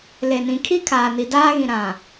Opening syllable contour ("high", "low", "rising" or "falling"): low